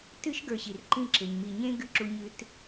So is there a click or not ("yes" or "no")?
yes